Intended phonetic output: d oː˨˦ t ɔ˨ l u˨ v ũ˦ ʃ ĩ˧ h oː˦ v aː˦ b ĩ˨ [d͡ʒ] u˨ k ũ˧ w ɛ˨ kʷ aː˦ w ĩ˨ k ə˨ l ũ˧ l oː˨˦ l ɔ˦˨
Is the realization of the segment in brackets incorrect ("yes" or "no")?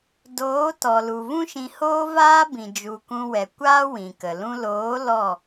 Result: no